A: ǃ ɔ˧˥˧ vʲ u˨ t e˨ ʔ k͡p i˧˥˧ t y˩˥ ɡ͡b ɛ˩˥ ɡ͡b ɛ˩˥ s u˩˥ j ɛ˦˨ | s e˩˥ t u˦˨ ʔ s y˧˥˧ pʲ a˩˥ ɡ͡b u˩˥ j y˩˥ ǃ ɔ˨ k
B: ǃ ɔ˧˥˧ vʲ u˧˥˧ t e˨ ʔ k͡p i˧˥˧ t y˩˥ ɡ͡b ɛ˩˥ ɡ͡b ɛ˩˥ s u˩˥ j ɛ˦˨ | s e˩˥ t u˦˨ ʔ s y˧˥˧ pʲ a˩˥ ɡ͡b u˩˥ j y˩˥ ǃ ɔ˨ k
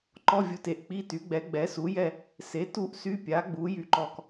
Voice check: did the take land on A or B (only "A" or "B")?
A